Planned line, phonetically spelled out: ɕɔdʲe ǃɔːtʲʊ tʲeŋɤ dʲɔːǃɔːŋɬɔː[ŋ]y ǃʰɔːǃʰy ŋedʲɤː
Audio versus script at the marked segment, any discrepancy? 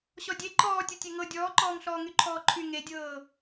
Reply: no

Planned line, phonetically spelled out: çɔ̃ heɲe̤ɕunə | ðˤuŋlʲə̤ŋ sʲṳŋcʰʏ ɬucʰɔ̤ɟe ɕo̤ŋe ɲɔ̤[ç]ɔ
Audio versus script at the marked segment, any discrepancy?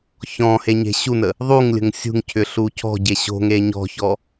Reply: no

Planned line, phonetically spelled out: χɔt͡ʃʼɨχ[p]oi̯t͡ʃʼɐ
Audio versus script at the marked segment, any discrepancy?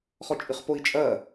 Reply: no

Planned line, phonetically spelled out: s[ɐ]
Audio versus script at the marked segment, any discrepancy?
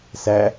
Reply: yes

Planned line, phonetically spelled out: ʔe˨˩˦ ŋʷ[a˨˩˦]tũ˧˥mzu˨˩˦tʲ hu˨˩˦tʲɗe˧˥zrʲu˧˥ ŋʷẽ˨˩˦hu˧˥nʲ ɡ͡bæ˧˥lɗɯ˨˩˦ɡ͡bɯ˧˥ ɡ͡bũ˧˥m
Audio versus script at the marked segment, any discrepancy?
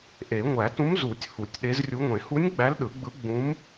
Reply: yes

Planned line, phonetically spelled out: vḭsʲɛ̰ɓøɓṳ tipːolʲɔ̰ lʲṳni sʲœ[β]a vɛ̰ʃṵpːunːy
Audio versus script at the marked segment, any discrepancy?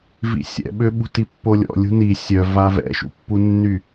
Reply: yes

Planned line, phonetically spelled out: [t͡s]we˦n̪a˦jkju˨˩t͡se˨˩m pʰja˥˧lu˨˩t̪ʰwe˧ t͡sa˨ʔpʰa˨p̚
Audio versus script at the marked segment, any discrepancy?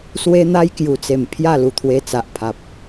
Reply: yes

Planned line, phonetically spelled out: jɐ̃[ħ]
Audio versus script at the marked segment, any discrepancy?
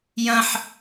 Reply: no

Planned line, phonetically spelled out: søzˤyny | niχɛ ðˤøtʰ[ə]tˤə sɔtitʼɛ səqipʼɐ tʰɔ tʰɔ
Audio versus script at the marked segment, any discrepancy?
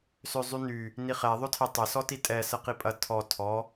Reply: yes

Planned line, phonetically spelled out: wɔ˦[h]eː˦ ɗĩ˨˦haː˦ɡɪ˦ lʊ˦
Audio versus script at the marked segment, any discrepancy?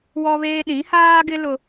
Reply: yes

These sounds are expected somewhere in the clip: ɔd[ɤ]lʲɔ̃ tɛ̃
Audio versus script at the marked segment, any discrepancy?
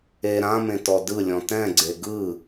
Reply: yes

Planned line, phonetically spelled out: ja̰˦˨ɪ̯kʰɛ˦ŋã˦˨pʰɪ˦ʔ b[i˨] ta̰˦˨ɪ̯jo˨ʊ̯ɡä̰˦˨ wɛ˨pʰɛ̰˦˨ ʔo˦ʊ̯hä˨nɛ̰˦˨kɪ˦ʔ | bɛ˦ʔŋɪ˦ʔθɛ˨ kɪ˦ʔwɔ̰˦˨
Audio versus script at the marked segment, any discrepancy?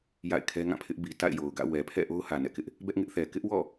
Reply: no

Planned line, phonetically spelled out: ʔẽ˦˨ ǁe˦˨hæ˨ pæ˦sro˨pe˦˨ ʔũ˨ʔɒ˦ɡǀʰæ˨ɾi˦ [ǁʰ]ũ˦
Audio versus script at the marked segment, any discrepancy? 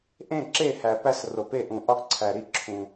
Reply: no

